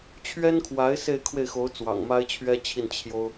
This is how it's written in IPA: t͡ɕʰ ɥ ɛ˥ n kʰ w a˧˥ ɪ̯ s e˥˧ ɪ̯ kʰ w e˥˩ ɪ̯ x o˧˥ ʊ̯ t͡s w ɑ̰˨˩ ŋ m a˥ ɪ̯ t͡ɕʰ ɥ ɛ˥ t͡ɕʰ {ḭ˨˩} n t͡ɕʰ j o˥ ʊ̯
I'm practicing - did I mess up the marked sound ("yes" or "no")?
yes